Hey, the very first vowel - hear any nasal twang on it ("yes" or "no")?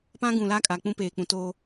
yes